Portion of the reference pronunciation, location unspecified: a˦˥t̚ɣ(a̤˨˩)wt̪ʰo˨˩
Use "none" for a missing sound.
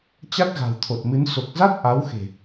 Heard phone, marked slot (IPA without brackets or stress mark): a̤˨˩